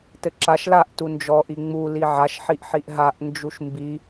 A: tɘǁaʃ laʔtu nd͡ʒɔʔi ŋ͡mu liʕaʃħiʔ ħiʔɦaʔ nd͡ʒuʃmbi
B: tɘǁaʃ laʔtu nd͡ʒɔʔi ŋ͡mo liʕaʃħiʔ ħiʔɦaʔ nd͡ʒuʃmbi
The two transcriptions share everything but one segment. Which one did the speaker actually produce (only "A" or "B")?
A